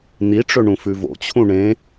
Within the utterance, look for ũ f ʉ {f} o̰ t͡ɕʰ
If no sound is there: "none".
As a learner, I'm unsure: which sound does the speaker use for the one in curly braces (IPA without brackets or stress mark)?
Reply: v